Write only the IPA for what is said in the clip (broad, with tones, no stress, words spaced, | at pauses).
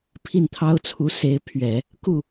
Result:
pʰi˥˩nt̪ʰɑ˥ʊ̯t͡sʰu˧˥ se˧˥ɪ̯pʰɥɛ˨˩˦ | ku˥˩